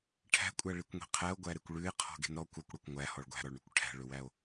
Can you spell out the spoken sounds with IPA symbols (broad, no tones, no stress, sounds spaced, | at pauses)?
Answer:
ʈʰ æ̤ kʷʼ æ ɭ i kʷ ŋʷ i̤ qʰ æ o̯ ɡʷ æ ɾ e kʷ ɭ ʉ e̯ qʰ ɔ̤ ɡ e̤ n ɾ ɔ kʷ ɔ kʷ ɽ ɔ kʷ ŋʷ æ h ɔ ɭ ɡʷ æ̤ ɾ ɔ ɭ ɳ ɵ kʷ ʈʰ æ̤ ɭ ɵ w æ o̯